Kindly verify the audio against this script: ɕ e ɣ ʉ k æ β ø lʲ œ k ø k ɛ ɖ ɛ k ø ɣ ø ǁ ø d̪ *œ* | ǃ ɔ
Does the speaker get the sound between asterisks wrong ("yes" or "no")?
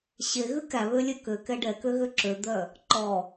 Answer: no